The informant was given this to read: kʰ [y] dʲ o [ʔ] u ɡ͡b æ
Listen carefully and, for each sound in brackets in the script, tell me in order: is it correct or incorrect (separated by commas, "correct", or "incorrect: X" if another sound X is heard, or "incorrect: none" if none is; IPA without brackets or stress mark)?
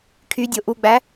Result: correct, correct